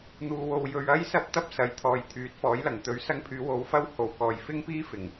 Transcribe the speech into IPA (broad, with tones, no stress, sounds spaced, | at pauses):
n̪ uː˧ w o˧ w j ɵ˧ ɥ ɐ˥ j s ɐ˥ p̚ t̪ ɐ˥ p̚ s ɐ˨˥ j t̪ʰ ɔː˨ j t̪ʰ yː˨˥ t̚ f ɔː˨˥ j l ɐ˨˩ ŋ t̪ ɵ˨˥ ɥ s ɐ˧ ŋ pʰ yː˨˧ w o˨˧ w f ɐ˧ w h o˨˩ w k ɔː˨˩ j f ɪ˥ ŋ p iː˥ f ɪ˨˩ ŋ